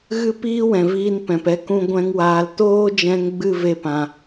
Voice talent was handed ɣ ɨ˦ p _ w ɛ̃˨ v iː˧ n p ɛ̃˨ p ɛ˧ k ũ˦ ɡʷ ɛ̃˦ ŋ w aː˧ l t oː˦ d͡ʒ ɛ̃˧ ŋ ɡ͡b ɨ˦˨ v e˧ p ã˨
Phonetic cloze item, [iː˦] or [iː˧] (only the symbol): iː˦